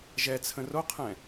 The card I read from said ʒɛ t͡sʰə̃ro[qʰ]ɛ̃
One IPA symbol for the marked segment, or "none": qʰ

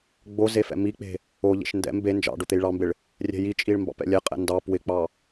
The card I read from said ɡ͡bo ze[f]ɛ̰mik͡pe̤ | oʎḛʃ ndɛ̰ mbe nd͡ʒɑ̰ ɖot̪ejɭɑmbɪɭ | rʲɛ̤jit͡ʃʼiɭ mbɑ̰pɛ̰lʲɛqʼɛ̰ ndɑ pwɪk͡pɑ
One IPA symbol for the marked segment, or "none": f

